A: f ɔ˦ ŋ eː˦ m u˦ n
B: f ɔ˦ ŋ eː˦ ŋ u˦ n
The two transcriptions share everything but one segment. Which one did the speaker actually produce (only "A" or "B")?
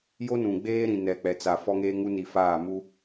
B